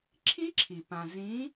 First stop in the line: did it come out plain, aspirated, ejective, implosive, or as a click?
click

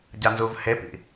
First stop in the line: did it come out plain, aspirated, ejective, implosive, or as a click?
plain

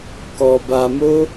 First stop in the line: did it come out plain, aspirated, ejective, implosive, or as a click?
plain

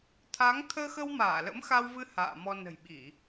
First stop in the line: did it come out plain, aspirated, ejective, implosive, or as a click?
aspirated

